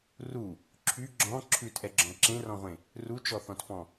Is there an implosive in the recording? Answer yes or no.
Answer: no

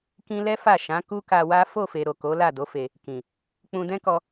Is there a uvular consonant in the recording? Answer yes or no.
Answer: no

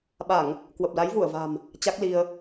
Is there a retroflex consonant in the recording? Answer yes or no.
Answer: no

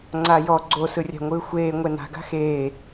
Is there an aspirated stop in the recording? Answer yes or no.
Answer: no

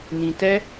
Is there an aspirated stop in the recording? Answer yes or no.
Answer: no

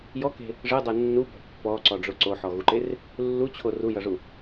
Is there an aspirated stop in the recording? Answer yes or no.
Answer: yes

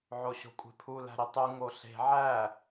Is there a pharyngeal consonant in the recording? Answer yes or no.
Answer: yes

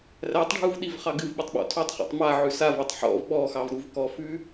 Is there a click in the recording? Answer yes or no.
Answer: no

